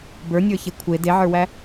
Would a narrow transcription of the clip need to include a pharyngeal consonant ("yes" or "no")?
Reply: yes